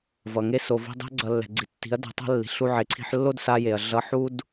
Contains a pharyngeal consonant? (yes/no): yes